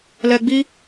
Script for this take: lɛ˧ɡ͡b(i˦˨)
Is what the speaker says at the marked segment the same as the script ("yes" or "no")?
no